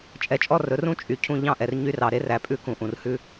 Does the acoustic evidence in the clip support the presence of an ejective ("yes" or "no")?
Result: yes